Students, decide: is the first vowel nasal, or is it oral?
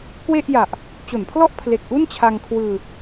oral